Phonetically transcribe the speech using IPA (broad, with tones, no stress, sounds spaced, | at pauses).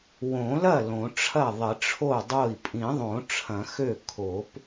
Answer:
w õ˨˩˦ l ɐ˥˩ l õ˨˩˦ ʈ͡ʂʰ ɐ˥˩ ðˤ ɪ˨˩˦ ʈ͡ʂʰ o˥˩ dˤ o˥˩ i̯ pʼ ĩ˨˩˦ ðˤ õ˨˩˦ ʈ͡ʂʰ ɐ̃˨˩˦ x ø˥˩ kʰ o˨˩˦ p